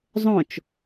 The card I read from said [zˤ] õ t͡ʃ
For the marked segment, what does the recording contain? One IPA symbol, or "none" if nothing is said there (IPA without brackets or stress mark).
zˤ